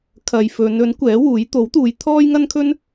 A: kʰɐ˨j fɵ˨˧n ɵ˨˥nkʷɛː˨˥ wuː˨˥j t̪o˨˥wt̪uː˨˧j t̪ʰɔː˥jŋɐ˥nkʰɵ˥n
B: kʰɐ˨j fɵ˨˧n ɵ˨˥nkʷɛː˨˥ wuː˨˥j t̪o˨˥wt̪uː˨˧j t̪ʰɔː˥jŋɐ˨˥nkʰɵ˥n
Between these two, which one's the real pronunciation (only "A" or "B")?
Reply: A